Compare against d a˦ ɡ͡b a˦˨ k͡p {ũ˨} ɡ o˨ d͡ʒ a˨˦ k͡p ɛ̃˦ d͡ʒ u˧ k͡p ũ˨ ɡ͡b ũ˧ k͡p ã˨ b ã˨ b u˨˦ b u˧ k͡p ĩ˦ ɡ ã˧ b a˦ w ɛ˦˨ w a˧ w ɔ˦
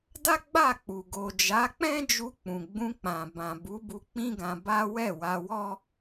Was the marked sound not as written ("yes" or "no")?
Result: yes